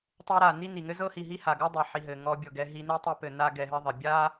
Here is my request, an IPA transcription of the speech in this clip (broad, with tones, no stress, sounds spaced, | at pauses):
tˤ e˦ ɾ a˨ n i˦ n i˨ ŋ ɘ˦ z ɤ˦ h i˨ ɦ i˦ h a˨ ɡ ɤ˦ dˤ e˨ ħ i˨ ɦ ɘ˨ ŋ ɔ˧ bʲ ɤ˨ ɡ ɛ˧ ɦ i˧ n i˦ tˤ i˧ p ɘ˨ n a˦ ɡ ɛ˧ ɦ ɘ˦ ðˤ ɘ˨ bʲ a˦